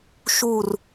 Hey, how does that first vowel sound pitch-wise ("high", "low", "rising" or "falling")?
falling